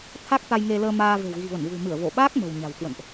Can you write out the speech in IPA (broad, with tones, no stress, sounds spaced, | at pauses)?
t̪ʰ a˦˥ k̚ t̪ a˧ j ŋ e˧ l əː˧ m aː˧ v e̤˨˩ w ɣ i̤˨˩ v ə˧˩ n v ṳ˨˩ m ɨ˧˩ ə̯ v o˧˩ ɓ aː˦˥ k̚ m ə̤˨˩ w ɲ a̤˨˩ w k w ə̰˧˨ n ʔ